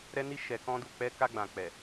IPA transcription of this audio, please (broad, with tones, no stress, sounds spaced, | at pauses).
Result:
ɾ ɛ˧ n i˧ ʃ ɛ˧ k ɔ̃˦ d u˦˨ k͡p ɛ˧ k a˧ ɡ͡b ã˨ k͡p ɛ˨